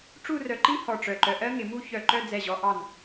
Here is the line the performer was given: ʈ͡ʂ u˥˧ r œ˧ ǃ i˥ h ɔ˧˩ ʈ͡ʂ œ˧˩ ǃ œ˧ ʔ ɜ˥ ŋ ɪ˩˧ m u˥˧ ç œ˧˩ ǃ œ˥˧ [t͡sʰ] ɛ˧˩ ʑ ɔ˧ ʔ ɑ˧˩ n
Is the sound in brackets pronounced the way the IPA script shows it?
no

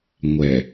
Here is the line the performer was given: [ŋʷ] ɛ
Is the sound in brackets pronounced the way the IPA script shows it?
yes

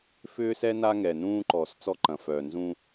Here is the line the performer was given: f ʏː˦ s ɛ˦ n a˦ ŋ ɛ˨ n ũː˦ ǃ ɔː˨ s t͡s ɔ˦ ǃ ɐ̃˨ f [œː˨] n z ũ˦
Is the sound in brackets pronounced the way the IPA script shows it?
yes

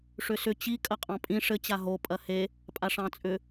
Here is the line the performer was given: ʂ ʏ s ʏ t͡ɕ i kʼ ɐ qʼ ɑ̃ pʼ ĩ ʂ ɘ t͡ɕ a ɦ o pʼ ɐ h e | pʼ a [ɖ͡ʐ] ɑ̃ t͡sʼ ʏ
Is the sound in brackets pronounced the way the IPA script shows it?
no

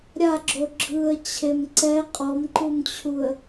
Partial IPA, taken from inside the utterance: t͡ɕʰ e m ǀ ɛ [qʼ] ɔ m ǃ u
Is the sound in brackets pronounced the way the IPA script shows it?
yes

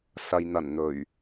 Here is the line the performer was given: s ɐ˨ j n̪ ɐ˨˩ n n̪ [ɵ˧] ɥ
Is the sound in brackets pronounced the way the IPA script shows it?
no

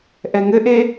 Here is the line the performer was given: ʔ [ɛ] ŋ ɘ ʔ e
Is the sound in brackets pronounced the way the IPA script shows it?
yes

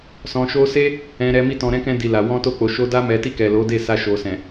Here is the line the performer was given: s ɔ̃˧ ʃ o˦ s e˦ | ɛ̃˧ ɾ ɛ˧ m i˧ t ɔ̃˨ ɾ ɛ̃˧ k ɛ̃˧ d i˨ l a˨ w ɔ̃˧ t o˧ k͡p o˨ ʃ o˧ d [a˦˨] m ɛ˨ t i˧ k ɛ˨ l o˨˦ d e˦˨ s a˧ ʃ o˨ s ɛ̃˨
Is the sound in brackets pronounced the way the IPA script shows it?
no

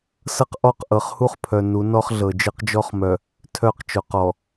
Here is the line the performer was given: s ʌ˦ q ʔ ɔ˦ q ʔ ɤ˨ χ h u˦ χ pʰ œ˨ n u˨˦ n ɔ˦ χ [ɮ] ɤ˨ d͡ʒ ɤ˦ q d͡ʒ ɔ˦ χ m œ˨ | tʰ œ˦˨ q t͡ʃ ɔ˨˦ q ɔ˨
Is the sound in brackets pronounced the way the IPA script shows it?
yes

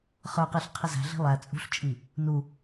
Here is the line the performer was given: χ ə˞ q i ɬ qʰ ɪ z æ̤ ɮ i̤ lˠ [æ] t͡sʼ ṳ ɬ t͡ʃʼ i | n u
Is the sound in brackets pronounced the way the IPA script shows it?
yes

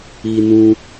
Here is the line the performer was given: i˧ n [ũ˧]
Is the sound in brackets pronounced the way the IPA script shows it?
yes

